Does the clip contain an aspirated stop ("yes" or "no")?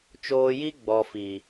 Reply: no